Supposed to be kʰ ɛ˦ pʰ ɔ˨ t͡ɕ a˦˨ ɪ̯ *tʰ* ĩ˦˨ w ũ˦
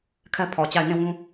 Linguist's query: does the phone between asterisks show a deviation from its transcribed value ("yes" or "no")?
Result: yes